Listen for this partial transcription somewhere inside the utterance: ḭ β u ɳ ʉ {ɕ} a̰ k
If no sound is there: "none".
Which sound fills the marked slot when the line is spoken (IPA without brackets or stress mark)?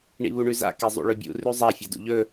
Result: z